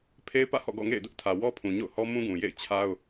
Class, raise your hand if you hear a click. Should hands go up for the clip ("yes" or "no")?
no